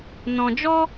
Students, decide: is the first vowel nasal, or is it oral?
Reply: nasal